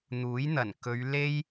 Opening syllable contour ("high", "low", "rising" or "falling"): rising